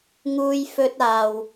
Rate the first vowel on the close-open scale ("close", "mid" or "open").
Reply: close